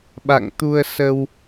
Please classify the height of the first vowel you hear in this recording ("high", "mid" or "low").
low